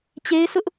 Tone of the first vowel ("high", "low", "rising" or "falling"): high